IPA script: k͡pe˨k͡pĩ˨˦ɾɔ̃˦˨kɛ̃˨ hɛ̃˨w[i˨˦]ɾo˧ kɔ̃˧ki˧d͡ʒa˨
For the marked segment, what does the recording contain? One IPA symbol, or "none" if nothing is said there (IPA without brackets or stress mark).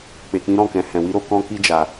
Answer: i˨˦